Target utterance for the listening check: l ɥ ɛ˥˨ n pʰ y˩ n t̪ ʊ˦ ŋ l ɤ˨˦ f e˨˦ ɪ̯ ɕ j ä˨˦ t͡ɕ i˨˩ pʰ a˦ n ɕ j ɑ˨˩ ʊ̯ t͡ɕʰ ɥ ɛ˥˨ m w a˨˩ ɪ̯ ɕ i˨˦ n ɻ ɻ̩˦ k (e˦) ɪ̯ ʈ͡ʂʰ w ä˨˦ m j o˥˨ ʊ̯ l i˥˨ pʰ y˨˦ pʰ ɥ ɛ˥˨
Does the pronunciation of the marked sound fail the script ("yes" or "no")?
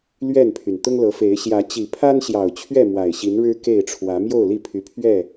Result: yes